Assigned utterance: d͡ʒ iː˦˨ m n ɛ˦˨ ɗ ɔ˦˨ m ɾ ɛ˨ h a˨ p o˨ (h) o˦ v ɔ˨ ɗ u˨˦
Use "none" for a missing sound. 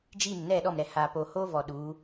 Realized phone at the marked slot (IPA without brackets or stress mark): h